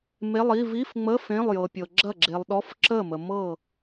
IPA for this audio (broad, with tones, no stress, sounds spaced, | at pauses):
m e˧˥˧ lˠ i˧˥˧ v i˧˥˧ f ŋ͡m ə˧˥˧ f ẽ˧˥˧ lˠ j ɤ˨ pʲ ɤ˨ ɡ͡ǁ ɐ˥˩ ɡ͡ǁ e˨ lˠ ɗ ɔ˧˥˧ f ǁ ə˥˩ m ə˨ m ɤ˥˩